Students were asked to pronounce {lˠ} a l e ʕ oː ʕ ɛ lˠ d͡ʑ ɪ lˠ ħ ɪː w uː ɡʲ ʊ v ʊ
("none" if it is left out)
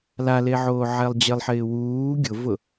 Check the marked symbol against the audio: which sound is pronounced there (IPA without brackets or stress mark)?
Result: l